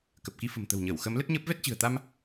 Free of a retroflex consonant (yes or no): yes